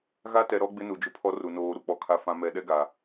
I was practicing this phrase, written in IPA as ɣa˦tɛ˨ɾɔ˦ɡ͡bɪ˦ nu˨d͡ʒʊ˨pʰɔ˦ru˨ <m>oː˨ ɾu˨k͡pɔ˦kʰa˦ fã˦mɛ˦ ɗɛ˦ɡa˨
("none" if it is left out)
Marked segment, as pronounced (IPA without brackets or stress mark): n